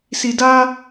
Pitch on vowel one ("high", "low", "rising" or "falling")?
low